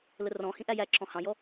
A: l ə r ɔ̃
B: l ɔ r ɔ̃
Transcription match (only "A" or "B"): A